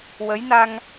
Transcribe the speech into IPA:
w ə˧˥ j n a˧ ŋ

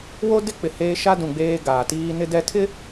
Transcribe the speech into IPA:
w o˦ d ɪ˦ k͡p ɪ˨ h eː˦ ʃ a˦ d ũ˨ ɡ͡b eː˦ ɡ aː˨ t iː˦ n ɪ˦ d ɛ˦ tʰ ɪ˦

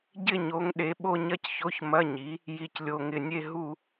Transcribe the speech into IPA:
ɟ ɪ˥˧ ɲ o˨˥ ŋ ɗ e˨˥ ɓ o˥˧ ɲ ɐ˥˧ c ç o˧˥˧ ç m ɐ˧˥˧ ɲ i˨˥ | j i˥˧ c lʲ o˥˧ ŋ ɪ˥˧ nʲ e˥˧ ɦ u˥˧

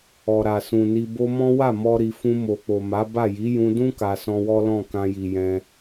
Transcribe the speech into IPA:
ɔ˨ ɾ a˨ s ũ˨ n i˧ b o˧ m ɔ̃˦ w a˦˨ m ɔ˧ ɾ i˨ f ũ˧ m o˨ k͡p o˨ m a˨˦ b a˦˨ j i˨˦ j ũ˧ d ũ˦ k a˧ s ɔ̃˧ w ɔ˦ l ɔ̃˦˨ k ã˧ j i˨ j ɛ̃˧

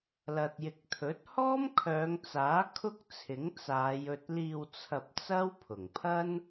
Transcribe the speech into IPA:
l ɐ˨ t̚ j ɪ˨ k̚ t̪ʰ ɵ˨˥ t̚ h ɔː˥ m kʰ œː˨˧ ŋ t͡s aː˨˥ kʰ ʊ˥ k̚ t͡sʰ ɪ˨˥ ŋ t͡s aː˨˧ j ɵ˧ t̚ l iː˧ w t͡sʰ ɐ˧ p̚ t͡s ɐ˥ w pʰ ʊ˨˩ ŋ pʰ ɐ˥ n

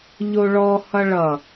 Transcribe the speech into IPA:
ʎ o ɭ ɔ h ʌ ɭ ʌ

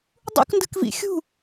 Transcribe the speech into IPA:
dˤ ṵ k n d ɯ k v ḭ xʲ ṳ

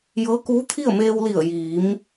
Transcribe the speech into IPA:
j ɤː˧˥ k uː˧˥ t̪ʰ i˥˨ ə̯ m eː˧ w l i˧˩ ə̯ j iː˩˧ m

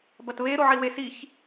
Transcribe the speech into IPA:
b ɐ t β e ɾ o ʕ i w e s i ç

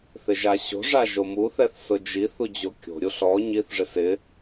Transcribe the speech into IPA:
θ ɪ ʒ a ɕ o̤ ʐ a ʒ o m u θ ɛ θ s ʊ d͡ʒ i θ u d͡ʑ o kʲ o̤ ɾʲ u ɬ ɔ ɲ i θ ʐ ɪ s ɪ

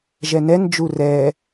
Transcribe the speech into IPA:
ʒ ɛ n ɛ n d͡ʒ u r ɛ

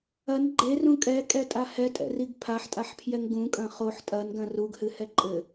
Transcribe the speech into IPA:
ɐ n ɡ͡ǃ e r ũ kʼ ɛ kʼ ɛ tʼ a h ɛ tʼ ɛ̰ r i ɡ pʰ a ħ tʼ a ħ pʰ j ɛ ŋ ɡ ũ kʼ ɐ̃ χ o ħ tʼ ɐ n ɡ ɐ̃ r u ɡ h ɨ h ɛ ǃʼ ɘ

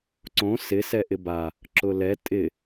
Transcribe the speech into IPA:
ǀ õ s ɪ s ɛ ʔ ɪ b a | ǁ ʊ l ɛ tʼ ɪ

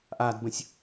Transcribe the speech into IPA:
ʔ a d b ə̃ sʲ

